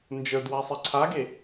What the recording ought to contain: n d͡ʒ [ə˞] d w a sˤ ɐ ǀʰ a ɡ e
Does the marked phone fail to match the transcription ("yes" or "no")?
no